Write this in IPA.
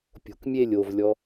pʲ o̤ k mʲ e lʲ o v lʲ ɔ

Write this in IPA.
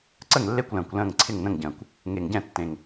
ǀ ə˥˨ ŋ lː e˥˨ kʷ l ə̃ː˨˩ kʷ l ə̃ː˥˨ ŋ ǀʰ ɪ˥˨ ŋ n ə̃˥˨ ŋ ɟ ə̃ː˨˩ kʷ | ŋ e˨˩ ŋ ɟ ɛ̃˥˨ tː ẽ˨˩ ŋ

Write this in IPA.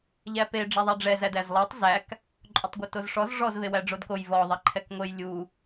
ʎ æ p e ɖ͡ʐ ɛ ðˤ æ ɖ͡ʐ ɛ z æ d æ z lˠ æ tˤ z æ k | ǃʼ o tˤ ɡʷ e t o z ʂ ɔ z ʐ ɔ z v e w æ ɖ͡ʐ o d k o j v ɔ ðˤ ɛ ǃʰ ɛ k ŋʷ e j lʲ u

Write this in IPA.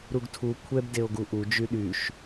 ɾ u ɡ tʰ u kʷʰ ɛ b d e o̯ ɡ u ʔ u d͡ʒ y ɗ y ʃ

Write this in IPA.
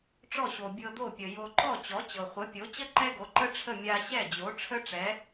ʈ͡ʂ ɔ˥˩ ɕ o˩ bʲ ɤ˧ d̪ o˥˩ pʲ ə˩ j o˧ ǃ ɔ˥˩ t͡ɕ ɔ˩˥ t͡ɕ ɤ˩ χʷ ə˩˥ pʲ o˩˥ t͡ɕ ə˥ ǃ ɛ˥ ɡ o˩˥ ǃ ə˥ ʈ͡ʂʰ ə˥˩ mʲ a˧ ɕ ɛ˥˩ d͡ʑ o˩˥ ʈ͡ʂʰ ə˥ ʈ͡ʂ ɛ˩˥

